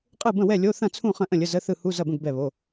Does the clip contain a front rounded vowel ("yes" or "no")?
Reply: no